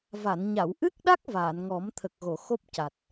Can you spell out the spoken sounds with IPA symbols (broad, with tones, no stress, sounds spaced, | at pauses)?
v a˨˩˨ n ɲ a˨˩˨ w ʔ ɨ˦˥ k̚ ɗ a˦˥ k̚ v aː˨˩˨ n ŋ ɔ˨˩˦ m t̪ʰ ə˨˩ k̚ ɣ o˨˩˨ x o˦˥ p̚ c a˨˩ t̚